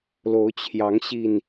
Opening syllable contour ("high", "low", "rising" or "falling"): rising